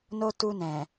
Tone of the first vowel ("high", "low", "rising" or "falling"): high